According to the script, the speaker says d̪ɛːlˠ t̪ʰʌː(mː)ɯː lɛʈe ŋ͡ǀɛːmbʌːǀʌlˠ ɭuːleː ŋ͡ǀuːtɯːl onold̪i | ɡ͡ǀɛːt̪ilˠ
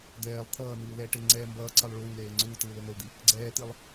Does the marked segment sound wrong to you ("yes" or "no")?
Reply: yes